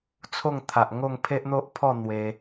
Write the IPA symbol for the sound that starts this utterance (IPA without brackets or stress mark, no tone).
t͡sʰ